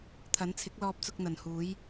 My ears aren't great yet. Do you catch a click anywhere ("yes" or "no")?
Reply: no